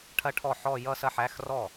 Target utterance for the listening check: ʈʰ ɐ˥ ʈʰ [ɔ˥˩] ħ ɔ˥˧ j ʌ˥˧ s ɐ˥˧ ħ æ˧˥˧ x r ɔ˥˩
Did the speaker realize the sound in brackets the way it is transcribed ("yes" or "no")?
yes